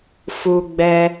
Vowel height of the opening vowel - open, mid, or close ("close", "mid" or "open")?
close